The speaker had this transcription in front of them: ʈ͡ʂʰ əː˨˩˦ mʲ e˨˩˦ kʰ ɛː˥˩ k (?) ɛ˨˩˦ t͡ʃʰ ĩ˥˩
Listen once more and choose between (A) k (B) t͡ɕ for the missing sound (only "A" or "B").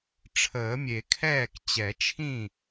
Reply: B